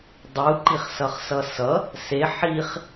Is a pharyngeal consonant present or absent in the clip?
present